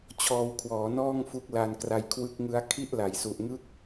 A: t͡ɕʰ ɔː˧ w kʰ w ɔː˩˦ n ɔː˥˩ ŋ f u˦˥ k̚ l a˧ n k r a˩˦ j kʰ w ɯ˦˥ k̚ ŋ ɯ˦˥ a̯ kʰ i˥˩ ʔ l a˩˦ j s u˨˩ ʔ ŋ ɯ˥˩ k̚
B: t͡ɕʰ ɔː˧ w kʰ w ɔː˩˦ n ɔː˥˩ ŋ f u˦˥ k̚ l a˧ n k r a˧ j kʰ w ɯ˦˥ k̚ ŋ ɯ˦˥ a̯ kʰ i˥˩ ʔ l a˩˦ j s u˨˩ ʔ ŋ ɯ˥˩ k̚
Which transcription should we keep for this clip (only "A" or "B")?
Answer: B